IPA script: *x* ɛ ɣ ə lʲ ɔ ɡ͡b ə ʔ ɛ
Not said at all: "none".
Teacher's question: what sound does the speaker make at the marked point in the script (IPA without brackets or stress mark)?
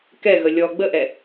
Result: k